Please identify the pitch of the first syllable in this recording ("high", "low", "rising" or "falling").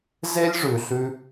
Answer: high